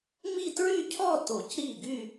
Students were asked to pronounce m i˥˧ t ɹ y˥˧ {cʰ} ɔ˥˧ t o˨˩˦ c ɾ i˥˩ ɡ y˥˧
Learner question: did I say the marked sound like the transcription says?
yes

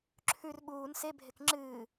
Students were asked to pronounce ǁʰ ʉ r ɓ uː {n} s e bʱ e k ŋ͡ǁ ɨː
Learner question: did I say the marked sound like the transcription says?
yes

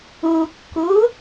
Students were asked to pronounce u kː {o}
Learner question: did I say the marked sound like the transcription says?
no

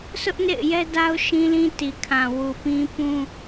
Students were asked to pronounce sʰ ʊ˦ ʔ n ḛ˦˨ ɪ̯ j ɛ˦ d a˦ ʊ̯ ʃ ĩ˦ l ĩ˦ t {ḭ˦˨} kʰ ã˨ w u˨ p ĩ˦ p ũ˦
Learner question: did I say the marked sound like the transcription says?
no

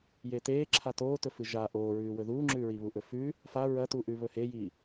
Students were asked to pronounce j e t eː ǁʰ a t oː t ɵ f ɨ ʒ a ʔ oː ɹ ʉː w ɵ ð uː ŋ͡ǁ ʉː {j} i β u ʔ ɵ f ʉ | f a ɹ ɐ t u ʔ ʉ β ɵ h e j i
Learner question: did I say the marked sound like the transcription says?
no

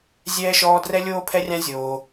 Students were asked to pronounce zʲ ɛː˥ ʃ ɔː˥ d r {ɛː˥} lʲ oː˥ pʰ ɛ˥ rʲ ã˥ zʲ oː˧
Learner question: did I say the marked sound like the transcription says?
no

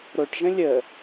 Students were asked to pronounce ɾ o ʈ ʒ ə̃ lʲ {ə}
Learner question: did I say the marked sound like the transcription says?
yes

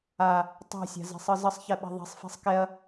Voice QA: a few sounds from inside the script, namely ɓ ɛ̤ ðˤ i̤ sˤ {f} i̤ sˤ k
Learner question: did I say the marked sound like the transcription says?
yes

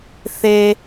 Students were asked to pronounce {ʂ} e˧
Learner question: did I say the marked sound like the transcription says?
no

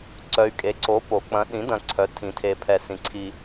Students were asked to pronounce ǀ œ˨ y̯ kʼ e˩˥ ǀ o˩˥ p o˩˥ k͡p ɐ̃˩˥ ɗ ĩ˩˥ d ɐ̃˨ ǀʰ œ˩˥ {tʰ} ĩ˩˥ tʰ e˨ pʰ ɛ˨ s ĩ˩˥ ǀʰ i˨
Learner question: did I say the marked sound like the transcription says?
yes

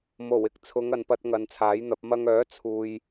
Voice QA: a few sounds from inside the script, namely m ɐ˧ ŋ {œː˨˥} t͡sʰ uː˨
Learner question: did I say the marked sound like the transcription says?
yes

